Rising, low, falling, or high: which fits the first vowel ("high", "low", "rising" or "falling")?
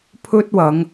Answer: high